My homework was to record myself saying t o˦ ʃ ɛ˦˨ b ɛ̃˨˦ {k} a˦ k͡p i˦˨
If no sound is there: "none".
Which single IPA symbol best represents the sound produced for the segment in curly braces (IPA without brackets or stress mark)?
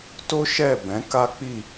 k